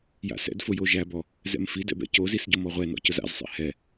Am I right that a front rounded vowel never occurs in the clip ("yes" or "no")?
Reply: yes